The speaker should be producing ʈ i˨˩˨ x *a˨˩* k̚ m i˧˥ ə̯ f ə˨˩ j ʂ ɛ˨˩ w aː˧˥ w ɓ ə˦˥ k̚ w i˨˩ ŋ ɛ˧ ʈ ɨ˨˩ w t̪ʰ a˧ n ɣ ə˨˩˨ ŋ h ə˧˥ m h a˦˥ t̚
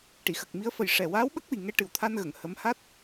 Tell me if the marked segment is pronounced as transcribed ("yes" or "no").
no